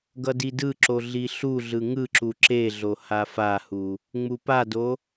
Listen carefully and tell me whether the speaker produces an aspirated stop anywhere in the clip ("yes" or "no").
no